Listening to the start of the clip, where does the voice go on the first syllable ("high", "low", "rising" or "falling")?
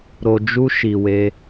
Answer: low